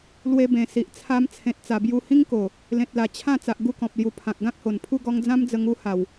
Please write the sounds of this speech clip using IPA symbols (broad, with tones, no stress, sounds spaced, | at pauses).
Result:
l w e˧ b ẽ˨˩ s i˨ ʔ t͡sʰ a˧ m t͡sʰ ẽ˨ t̚ t͡s a˨˩ b j u˧ h ĩ˦ ŋ k o˨˩ | l ẽ˨ t̚ l a˨˩ t͡ɕʰ ã˥˧ t͡s a˨ ʔ ɡ u˦ k ɔ̃˨ p̚ l j u˧ pʰ ã˨ k̚ ɡ ã˦ k̚ h o˨˩ n pʰ u˥˧ ɡ ɔ˧ ŋ d͡z ã˦ m d͡z ə˧ ŋ u˥˧ h a˨˩ w